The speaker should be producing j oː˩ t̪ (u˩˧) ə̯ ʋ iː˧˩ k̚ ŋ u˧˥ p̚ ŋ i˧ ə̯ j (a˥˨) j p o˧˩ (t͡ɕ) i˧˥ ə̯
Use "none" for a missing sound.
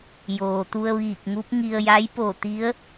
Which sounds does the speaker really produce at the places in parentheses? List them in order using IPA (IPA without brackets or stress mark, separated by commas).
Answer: u˧, a˧˥, t̪